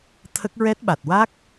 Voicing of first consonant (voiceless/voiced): voiceless